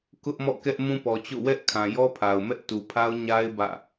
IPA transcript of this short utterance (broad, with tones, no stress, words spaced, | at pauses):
kʊ˦ʔmɔ̰˦˨kɛ˦ʔ mũ˦pɔ˨t͡ɕo̰˦˨ wɛ˦ʔkʰã˨ jɔ˦pʰa˨ʊ̯mɛ˦ʔ tu˨pʰa˦ʊ̯ɲa˦ɪ̯ bä̰˦˨